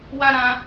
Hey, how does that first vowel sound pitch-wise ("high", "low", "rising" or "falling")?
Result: high